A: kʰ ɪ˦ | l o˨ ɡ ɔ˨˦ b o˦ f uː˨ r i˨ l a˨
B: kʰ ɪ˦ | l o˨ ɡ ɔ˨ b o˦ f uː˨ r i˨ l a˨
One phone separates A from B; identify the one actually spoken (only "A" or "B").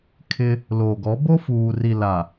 A